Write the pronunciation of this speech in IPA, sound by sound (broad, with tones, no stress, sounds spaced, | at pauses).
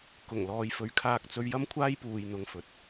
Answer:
k ʊ˨˩ ŋ l ɔː˨ j f ɵ˨ ɥ kʰ aː˧ k̚ t͡s ɵ˧ ɥ j ɐ˥ m kʷʰ aː˥ j p uː˨ j n̪ ʊ˧ ŋ f ɵ˨˥ t̚